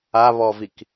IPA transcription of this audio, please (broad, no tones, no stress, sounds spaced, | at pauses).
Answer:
a β ɔ v i k